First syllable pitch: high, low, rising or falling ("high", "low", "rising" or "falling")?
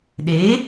rising